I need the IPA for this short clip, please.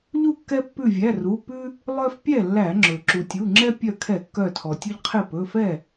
ʎ u˥˩ kː ɛ˦ pː ʉ˧˩ vʲ æ˩˧˩ r u˩˧˩ p ʉ˦ | lˠ œ˦ f pʲ ɛ˥˩ lː æ˧˩˧ ŋ͡ǁ ɵ˩ ǁ u˩ tʲ u˩˧˩ ŋ͡ǁ ɛ˦ pʲ œ˧˩ kʰ ɛ˧˩˧ kː œ˧˩ tʰ ɔ˩ tʲ ɵ˦ ʎ qʰ e˥˩ p ɵ˩˧˩ f ɛ˥˩

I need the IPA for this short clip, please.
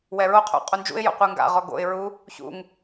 w ɛ ɹ o qʰ o̰ qʼ u n d͡ʒ ṵ ɪ̯ j o̰ qʷ ɯ ŋ ɡ a̰ ʁ ɔ ɡ o̰ ɪ̯ ɹ u | ç ṵ ŋ

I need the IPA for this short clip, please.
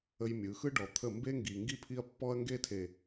ə˦ j mʲ ɯ˨˦ x ɯ˦ ɖ ɔ˨ t̪ʰ ə˦˨ m b e˦ ŋ ɡ i˨ ŋ ɡ i˦ pʰ i˦ ɐ̯ pː ɔ˦ ɐ̯ ŋ ɡ e˦ tʰ e˨

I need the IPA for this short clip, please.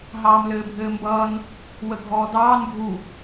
ɦ ɑː m l ɘː bʱ ɘː m b ʌː n | w ə ɡʱ ɔː d ɑː n ɡʱ u

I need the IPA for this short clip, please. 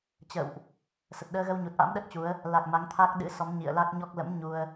t͡ɕ ə̰ː˧˨ w ʔ | s ə˨˩ t̚ ɗ əː˧ ɣ ə˧ w ɲ u˨˩ t̚ ʔ a̰˧˥ m ɗ ə˦˥ t̚ t͡ɕ u˨˦ ə̯ | l a˨˩ k̚ m a˨˦ ŋ t̪ʰ a˦˥ k̚ ɗ ɨ̰˧˥ s ɔ˨˦ m ɲ ḭ˧˨ ə̯ l a˦˥ k̚ ɲ ɔ˦˥ k̚ l ə̰˧˥ m ɲ u˧ ə̯

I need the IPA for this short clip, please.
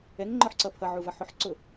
ɛ ŋ ŋ͡ǃ ɔ ħ ǀ ʌ pʰ ʌ ʕ u v ʌ ħ ʊ ħ ǀ ʊ

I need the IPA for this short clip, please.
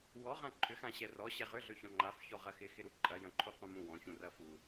w ɔ ʁ ã ǃʰ ʏ x ã ɕ ɛ r ɔ ɕ ɛ ʁ ʏ ɮ ø ç ɔ̃ ŋ͡ǃ a f ç ɔ ʁ ɐ x ɪ x ɪ ɾ u ǃʼ ɐ j ɐ̃ ǃʰ u q ũ m ũ w ɔ̃ ç ũ r ɐ f u

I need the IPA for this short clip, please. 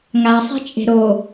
ŋ a sˤ e̤ t͡ʃʼ e̤ ɾ o

